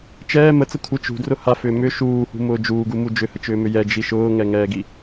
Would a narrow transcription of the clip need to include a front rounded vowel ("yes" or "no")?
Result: yes